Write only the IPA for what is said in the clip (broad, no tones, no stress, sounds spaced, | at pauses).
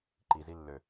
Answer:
ǃ i z i lː ø